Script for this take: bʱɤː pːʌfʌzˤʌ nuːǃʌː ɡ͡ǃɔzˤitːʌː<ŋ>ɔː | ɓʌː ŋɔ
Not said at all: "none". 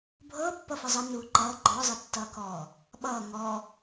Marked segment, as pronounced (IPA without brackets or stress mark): k